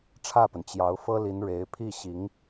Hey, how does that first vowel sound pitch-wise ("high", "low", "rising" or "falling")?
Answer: falling